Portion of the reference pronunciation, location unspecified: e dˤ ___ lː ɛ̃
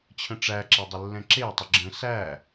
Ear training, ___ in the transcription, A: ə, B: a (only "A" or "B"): A